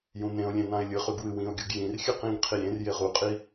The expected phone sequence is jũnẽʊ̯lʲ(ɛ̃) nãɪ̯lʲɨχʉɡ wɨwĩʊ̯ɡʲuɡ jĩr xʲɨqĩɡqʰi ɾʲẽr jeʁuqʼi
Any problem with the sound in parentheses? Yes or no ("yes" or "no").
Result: yes